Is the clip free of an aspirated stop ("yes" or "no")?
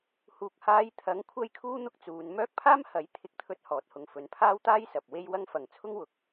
no